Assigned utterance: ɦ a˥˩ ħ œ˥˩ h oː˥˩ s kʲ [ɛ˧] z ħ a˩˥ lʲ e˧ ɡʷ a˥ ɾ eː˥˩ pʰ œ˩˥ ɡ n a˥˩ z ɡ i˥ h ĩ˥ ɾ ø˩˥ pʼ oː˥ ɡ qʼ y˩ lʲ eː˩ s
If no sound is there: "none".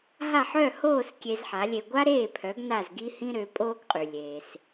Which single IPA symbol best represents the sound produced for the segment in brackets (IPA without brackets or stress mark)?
e˧